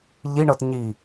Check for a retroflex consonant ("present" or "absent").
present